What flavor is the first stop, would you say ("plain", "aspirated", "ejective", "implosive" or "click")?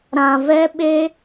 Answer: implosive